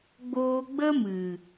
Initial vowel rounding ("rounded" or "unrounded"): rounded